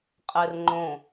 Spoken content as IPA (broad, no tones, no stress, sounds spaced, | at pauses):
qʼ e r ŋ͡ǃ õ